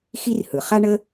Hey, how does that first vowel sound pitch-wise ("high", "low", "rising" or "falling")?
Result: high